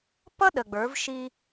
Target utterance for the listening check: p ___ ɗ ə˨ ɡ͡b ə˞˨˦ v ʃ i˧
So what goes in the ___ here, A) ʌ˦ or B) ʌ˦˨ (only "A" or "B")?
A